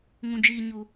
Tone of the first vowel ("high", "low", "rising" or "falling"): low